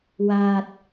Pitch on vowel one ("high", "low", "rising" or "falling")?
low